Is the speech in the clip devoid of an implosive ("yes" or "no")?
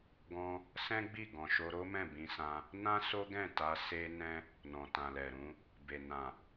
yes